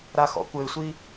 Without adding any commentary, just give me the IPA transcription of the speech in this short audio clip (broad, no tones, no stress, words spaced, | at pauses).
ɾaxɔ̰kʷɘɪ̯sʷi